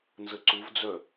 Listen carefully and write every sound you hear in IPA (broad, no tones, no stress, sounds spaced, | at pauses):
n z ə ǀ u v d͡z œ